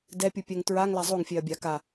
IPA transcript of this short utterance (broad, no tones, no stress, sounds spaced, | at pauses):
d ɛ pʲ u pʲ ɛ ŋ t ɹ a ŋ l a zˤ o ŋ fʲ ɛ ɐ̯ bʲ a k a